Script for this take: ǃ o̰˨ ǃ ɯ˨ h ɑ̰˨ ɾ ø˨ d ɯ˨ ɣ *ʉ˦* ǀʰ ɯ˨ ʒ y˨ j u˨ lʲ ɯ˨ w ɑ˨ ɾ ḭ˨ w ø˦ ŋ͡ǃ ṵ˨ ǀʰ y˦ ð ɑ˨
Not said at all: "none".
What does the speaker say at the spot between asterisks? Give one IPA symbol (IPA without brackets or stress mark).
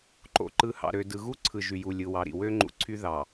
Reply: u˦